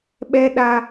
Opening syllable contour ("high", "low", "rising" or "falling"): high